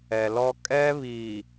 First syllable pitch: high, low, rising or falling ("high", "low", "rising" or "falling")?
low